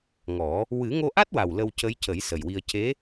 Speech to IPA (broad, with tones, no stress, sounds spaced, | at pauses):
ŋ ɔ˨˩˦ | w ɨ˨˩˦ ŋ o˧ ʔ a˦˥ t̚ w a˨˩ w l ə˧ w c ə˧˥ j c ə˨˩˦ j s ə˨˩ j w i˧ ə̯ c e˧˥